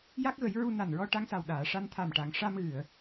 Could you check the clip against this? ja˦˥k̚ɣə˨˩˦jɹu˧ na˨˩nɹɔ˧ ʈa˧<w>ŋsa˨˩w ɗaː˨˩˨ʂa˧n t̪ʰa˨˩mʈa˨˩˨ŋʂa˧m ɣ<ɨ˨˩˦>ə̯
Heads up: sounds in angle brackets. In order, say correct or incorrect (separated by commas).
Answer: incorrect, incorrect